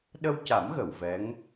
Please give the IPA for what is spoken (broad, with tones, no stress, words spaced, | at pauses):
ɗə˧wca˨˩˦m ɣə˨˩˨wvɛ˧˥ŋ